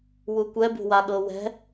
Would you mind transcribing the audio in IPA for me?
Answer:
w u kʷ ɛ b ṳ w a ɠ ɤ w ɛ̤

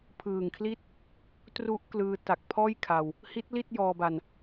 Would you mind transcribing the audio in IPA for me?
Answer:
pʰ ɯː˨˩ ŋ kʰ l i˥˩ t̚ | t r u˦˥ ʔ k l ɯː˧ t a˨˩ k̚ pʰ ɔː˥˩ j kʰ a˧ w | h i˦˥ t̚ l i˥˩ t̚ j ɔː˧ b a˧ n

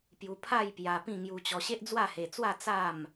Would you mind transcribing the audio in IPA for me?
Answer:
p j u˧ pʰ a˥˧ j p j a˧ p ĩ˥˧ ŋ j u˧ t͡ɕ ɔ˧ ɕ e˦ ʔ d͡z w a˥˧ h e˧ t͡s w a˥˧ t͡s a˥˧ m

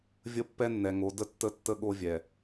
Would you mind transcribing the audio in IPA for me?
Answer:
vʲ ə˦ pː ɛ˦ nː ɛ˨ ŋ o˨˦ d ə˦ tː ə˦ tː ə˦ ɠ o˦ vʲ ɛ˨

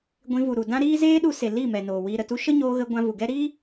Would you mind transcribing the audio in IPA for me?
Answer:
ɡʷ ĩ˧ v u˨ ɾ u˨ d ã˦ ɾ iː˦ z eː˦ ɗ u˧ s e˨ l i˦˨ m ɛ˨ n oː˨ w iː˨ ɾ ə˨ t u˧ ʃ ə˦ ɲ oː˧ ɣ ə˧ ɡʷ ã˧ v u˨ ɡ ɛ˦ ɾ i˦

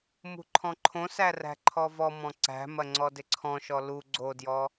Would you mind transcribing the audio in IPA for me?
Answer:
m ṳ ǃʰ ɔ̃ ǃʰ õ s æ r æ̤ ǃʰ ɔ v ɔ m ɔ̃ ǀ æ̤ m ɐ ŋ͡ǀ ɔ d ɪ ǀʰ ɔ̃ ʃ ɔ l u ɡ͡ǀ o d j ɔ

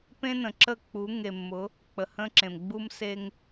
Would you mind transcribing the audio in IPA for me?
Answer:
p ẽ˦ n ə̃˨ ǁ ə˦˨ k͡p u˨˦ ŋ e˨ mː ʊ˨˦ | k͡p ə˨ h ə̃˦ ǁ ẽ˨ m ɡ͡b u˦ m s e˦ ŋ

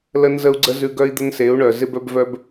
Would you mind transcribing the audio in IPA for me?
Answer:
l ə˦ n z ə˦ u̯ ɡ͡ǀ ə˦ z ʉ˧ ɡ œ˦ i̯ d̪ ə˦ n s e˨˦ u̯ ɳ œ˨ z ɪ˧ b œ˧ b v œ˧ b

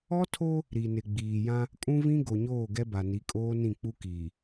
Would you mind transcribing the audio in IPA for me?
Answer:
ɔ˦ tʰ o˦ | ɾ i˨ n ɪ˨ ɡ͡b iː˨ j ã˦ | kʼ ũ˦ v ĩ˦ ɡ o˨ ɲ oː˦˨ ɡ ɛ˦ b a˨ n i˨˦ kʼ oː˦ n ĩ˦˨ k͡p u˦ k iː˨

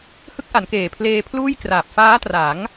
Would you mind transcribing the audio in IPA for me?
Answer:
h ɯ˦˥ k̚ ʔ a˩˦ n k eː˨˩ pʰ l eː˧ pʰ l uː˥˩ j k r aː˨˩ p̚ f aː˦˥ t r a˩˦ ŋ

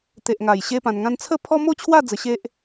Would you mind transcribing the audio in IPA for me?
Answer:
t̪ e˨ ʔ ŋ a˨˩ j ɕ e˦ p ã˧ n ŋ ã˦ n t͡sʰ ə˦ pʰ ɔ˦ m o˥˧ t͡ɕʰ w a˥˧ d͡z ə˧ ɕ e˦ ʔ

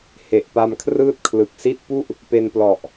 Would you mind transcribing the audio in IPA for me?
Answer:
h e˨˩ ʔ p a˧ m kʰ r ɯː˥˩ t̚ kʰ l ɯ˨˩ k̚ s i˥˩ t̚ p u˥˩ ʔ | p e˧ n p l ɔ˨˩ ʔ

